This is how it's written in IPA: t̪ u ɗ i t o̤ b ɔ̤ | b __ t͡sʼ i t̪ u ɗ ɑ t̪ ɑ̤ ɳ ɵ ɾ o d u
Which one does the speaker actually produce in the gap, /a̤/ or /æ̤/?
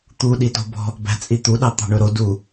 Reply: æ̤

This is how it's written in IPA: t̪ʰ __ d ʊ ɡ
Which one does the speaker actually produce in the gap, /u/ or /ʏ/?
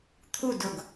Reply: u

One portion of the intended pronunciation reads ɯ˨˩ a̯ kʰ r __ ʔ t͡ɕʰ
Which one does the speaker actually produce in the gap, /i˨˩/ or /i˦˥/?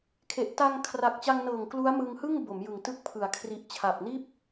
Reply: i˨˩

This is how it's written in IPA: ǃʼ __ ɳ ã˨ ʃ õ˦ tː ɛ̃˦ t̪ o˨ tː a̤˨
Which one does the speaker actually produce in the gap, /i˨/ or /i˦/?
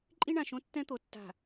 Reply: i˦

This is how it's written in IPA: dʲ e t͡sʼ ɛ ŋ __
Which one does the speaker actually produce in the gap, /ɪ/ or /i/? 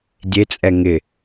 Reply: ɪ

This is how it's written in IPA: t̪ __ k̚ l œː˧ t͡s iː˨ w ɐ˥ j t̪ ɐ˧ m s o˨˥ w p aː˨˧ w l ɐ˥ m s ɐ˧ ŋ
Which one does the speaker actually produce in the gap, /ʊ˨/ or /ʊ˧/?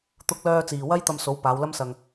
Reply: ʊ˧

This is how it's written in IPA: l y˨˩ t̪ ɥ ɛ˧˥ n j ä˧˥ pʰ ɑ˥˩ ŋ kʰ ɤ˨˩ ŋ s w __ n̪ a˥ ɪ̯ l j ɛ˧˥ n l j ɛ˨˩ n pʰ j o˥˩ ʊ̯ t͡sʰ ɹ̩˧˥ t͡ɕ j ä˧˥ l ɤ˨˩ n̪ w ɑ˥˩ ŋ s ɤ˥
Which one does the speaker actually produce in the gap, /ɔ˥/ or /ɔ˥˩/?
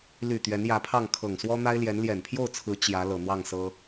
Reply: ɔ˥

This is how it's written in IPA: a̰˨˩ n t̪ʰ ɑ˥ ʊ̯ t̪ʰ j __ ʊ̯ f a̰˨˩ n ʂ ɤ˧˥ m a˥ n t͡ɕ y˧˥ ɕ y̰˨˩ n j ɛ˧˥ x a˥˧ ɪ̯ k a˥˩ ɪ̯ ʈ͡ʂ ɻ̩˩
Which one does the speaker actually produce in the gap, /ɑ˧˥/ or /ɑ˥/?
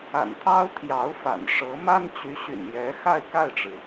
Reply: ɑ˧˥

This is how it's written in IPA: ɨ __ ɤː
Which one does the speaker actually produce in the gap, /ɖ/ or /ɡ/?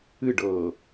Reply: ɖ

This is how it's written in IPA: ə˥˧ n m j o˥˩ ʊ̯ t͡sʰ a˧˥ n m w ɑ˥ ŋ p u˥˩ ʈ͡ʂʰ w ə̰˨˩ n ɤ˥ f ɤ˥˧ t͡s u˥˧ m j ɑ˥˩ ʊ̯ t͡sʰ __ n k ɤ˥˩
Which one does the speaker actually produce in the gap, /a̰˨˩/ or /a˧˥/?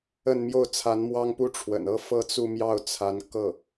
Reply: a˧˥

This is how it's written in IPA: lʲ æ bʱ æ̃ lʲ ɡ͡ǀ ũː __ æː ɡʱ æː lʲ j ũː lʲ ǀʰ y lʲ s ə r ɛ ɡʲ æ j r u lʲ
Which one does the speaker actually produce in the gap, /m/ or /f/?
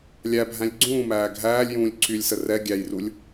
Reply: m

